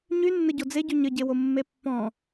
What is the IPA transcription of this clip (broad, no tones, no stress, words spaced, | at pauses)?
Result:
ɲynːə ɟod͡zeɟy ɲəɟewo mːepːɔ̃